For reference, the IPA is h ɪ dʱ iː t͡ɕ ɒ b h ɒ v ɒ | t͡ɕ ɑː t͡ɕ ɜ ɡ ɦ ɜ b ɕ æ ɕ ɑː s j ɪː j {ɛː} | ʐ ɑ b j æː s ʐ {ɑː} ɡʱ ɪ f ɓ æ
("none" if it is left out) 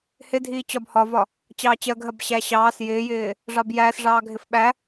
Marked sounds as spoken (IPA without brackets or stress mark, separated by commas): ɪː, ɑː